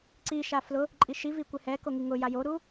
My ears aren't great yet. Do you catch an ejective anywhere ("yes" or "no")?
yes